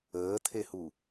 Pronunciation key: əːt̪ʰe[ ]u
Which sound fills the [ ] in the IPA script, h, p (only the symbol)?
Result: h